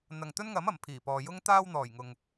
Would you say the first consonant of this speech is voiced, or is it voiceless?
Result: voiced